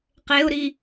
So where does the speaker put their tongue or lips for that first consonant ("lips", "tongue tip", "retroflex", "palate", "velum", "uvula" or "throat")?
uvula